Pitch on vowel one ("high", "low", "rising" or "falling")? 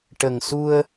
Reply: low